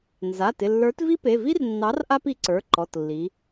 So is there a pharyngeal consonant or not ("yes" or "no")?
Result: no